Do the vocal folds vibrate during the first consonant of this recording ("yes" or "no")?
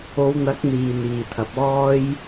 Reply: yes